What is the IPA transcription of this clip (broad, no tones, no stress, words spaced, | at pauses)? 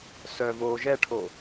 sœvoː ʒɛʈʰo